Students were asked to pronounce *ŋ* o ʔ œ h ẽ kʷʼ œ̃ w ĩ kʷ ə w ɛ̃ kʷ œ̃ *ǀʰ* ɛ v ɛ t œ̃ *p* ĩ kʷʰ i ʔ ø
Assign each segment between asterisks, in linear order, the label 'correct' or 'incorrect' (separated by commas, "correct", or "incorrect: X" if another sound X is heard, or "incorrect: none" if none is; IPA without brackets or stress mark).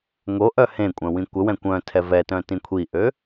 correct, incorrect: tʰ, incorrect: t